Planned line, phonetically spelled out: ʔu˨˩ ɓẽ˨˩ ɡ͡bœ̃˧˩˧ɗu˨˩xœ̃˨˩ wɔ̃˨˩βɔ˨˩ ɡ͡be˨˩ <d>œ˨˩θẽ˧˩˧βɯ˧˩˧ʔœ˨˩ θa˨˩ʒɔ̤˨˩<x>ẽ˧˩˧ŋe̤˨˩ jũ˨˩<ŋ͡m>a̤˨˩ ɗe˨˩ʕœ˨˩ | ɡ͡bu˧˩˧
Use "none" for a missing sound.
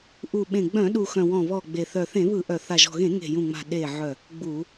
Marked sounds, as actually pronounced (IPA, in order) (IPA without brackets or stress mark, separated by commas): θ, ɣ, ŋ͡m